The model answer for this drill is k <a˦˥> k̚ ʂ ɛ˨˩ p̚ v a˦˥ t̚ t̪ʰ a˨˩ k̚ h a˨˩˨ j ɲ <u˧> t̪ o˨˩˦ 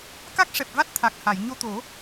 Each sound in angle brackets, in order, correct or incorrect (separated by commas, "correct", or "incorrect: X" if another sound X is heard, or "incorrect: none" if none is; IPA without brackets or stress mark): correct, incorrect: o˧